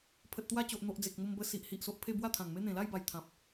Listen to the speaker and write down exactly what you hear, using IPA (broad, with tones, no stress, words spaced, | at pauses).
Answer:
pʰə˨t̚t̪wa˧t͡ɕo˨ʔ n̪o˨ʔ d͡ze˨k̚mo˧mbə˧ si˨ʔhi˨ʔso˨ʔ pʰe˥˧bwa˥˧t̪ʰã˨˩ŋme˦ n̪ẽ˨˩la˥˧jba˨˩j t̪ʰã˨p̚